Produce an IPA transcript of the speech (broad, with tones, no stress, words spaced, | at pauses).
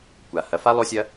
kʷa˨ hɐ˨fa˦ lˠo˦sʲɐ˦